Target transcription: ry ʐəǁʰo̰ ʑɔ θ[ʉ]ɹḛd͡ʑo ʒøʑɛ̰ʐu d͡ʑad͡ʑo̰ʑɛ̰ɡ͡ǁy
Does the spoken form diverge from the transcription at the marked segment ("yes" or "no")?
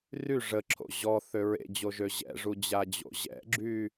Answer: yes